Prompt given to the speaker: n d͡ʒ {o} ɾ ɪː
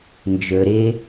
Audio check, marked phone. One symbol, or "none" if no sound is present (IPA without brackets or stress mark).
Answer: ɵ